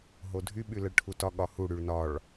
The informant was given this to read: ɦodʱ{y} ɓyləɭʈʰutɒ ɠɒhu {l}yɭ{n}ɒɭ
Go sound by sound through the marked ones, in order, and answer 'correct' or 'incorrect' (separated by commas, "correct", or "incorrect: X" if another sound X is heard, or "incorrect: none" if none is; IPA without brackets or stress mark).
correct, incorrect: ɽ, correct